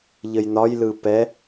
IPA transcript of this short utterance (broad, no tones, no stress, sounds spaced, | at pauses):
ʎ ə j n ɒ j l ɯ p ɛ